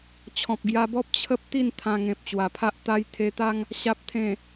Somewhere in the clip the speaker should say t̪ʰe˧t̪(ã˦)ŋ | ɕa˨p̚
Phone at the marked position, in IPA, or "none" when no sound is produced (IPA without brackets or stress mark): a˦